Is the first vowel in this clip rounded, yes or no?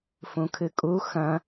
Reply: yes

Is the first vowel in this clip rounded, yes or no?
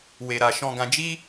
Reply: no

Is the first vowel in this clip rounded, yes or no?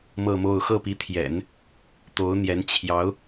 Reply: no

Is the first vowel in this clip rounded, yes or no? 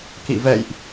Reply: no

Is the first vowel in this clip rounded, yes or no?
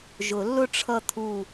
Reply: yes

